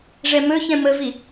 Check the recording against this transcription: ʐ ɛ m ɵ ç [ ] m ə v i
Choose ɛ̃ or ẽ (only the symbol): ɛ̃